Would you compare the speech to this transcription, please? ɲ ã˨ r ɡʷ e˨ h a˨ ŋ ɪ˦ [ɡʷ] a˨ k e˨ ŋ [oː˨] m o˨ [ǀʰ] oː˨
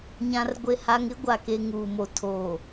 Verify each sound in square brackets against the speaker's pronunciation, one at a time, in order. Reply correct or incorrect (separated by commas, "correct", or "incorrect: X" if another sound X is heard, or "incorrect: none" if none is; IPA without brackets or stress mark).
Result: correct, incorrect: uː˨, incorrect: tʰ